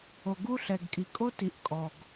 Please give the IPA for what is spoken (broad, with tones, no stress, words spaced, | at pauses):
o˨ɡu˦ɬɛ˨ɡkʼi˨ kʼo˦ti˨ʔ kʼɔ˨ɡ